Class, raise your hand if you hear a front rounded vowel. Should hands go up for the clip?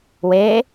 no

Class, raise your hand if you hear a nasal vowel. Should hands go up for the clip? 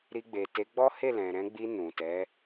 yes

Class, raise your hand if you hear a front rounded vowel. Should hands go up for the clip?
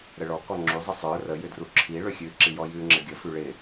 yes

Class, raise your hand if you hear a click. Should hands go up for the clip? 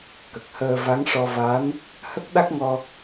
no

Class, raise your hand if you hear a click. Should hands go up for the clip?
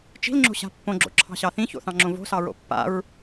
yes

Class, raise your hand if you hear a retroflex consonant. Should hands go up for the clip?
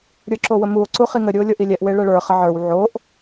yes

